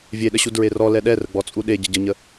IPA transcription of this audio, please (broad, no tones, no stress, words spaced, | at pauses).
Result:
vʲeɗəɕu dɹerɔ lɛɗɛrəɡ͡bɔ t͡sʼuɗe ɟəɟəɲə